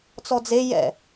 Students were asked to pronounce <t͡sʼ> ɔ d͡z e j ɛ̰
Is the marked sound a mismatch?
yes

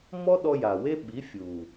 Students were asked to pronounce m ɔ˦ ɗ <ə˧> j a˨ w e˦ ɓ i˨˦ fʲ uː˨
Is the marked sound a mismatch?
yes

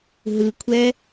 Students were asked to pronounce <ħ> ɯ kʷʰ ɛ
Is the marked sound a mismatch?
yes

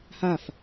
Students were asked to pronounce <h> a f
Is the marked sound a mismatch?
no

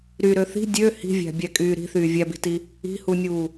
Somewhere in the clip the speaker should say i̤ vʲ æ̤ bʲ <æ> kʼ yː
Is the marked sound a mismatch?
no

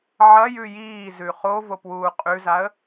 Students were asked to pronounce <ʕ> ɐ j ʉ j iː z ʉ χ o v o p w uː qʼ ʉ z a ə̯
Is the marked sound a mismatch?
no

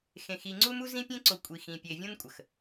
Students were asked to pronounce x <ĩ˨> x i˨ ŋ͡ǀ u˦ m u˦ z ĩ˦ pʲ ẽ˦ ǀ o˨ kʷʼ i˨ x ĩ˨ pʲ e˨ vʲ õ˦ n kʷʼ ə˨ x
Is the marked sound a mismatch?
yes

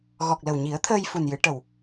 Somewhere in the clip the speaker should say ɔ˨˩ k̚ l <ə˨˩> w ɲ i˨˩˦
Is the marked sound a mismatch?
no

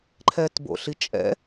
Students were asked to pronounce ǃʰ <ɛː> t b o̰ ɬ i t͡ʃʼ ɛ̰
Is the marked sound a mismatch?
no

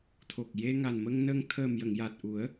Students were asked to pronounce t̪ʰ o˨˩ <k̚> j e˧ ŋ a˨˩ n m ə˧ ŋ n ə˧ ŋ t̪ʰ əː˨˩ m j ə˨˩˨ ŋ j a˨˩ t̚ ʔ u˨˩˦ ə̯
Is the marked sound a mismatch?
no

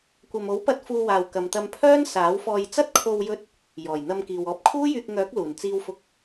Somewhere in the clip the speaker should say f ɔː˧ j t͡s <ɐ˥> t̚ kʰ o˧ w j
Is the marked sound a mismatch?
no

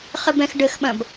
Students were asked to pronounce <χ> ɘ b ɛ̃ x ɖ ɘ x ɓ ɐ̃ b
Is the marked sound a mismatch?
no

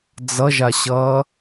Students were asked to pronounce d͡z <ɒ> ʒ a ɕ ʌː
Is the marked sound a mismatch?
yes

